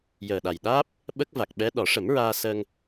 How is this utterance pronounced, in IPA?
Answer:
j əː˨˩ ɗ a˨˩ j ɗ aː˦˥ p̚ | ɓ ə˦˥ k̚ v a˨˩ k̚ ɓ ɛ˧˥ ɗ ɔ˨˩˦ ʂ ə˨˩˦ m ɹ aː˧ s əː˧ ŋ

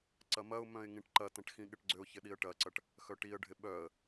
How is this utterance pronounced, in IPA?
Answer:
ǀ ɐ m ɐ ʊ̯ m œ̃ ɪ̯ ŋ ĩ ʈ ǃ ɐ t ɐ̃ ʈ x ĩ ɠ ɪ ʈ ɡ͡ǀ ʏ ʊ̯ ç ɪ ɗ i ə̯ ʈ ɐ ǀ ɐ ʈ | x œ ʈ i ə̯ ɖʱ ɪ ɓ œ ə̯

